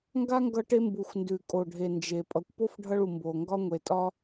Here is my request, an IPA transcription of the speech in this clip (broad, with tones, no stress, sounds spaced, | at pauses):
ŋ ɡ a˦ ŋ ɡ ʌ˧ ʈ e˧ m b u˨ xʷ n d ʉ˨ kʼ o˨ ɖʱ e˨ n d͡ʒ e˨ pʼ ʌ˨ kʷ p o˦ f ɖʱ ʌ˧ ɭ u˨ m b o˨ ŋ ɡ ɒ˧ ŋʷ e˨ tʼ ɒ˧